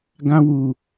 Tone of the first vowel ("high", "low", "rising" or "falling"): high